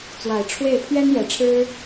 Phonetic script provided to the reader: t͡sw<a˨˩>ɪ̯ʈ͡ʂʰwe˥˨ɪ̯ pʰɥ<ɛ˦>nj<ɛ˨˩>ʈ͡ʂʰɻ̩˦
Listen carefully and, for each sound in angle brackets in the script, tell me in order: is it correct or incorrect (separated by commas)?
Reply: correct, correct, correct